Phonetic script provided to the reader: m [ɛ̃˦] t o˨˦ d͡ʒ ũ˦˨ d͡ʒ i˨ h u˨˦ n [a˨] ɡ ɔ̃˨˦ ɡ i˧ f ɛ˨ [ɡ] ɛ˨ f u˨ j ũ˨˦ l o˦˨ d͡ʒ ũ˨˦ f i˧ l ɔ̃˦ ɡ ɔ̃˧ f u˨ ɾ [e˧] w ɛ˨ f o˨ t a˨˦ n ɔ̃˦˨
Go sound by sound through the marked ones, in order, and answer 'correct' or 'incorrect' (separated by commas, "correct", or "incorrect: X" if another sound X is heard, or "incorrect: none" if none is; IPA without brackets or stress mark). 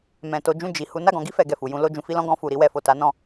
incorrect: ɛ̃˨, incorrect: a˦˨, correct, incorrect: i˧